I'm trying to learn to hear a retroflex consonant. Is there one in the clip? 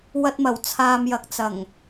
no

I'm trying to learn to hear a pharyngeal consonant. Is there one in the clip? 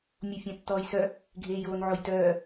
yes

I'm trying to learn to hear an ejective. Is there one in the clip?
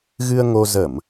no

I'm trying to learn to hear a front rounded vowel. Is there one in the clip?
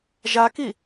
no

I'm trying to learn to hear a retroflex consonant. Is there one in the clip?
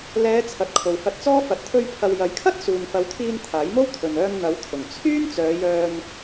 no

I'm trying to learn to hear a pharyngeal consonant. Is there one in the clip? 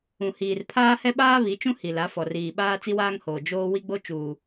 no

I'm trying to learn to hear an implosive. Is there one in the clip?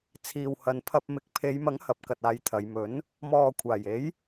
no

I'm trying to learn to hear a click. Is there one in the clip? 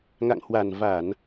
no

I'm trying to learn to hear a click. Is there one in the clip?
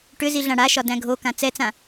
no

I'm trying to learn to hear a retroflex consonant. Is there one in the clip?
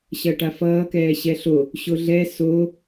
yes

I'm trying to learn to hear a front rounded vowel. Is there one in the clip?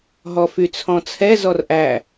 yes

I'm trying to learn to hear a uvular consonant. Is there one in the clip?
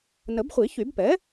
yes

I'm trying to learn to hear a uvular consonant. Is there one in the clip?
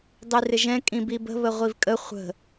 yes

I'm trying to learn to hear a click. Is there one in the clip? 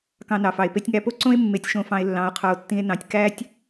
yes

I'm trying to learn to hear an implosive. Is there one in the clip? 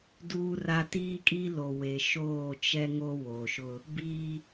no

